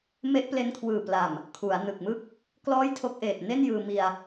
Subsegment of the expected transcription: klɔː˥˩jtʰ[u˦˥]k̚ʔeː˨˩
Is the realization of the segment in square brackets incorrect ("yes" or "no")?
yes